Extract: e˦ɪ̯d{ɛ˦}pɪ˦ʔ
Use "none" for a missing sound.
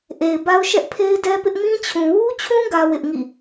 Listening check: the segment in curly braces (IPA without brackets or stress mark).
ɛ˦